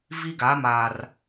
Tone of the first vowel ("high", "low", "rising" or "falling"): high